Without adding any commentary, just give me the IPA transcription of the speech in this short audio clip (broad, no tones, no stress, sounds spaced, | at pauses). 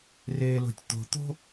r eː l o̤ tʲ t̪ o̤ t̪ o̤